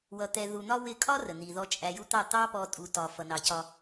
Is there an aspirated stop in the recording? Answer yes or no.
no